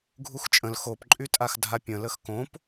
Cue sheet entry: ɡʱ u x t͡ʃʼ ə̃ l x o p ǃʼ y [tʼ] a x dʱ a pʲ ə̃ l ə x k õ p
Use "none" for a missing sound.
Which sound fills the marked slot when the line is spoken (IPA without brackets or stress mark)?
tʼ